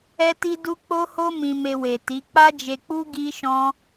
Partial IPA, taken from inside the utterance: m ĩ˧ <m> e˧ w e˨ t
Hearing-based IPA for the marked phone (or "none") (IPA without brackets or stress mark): m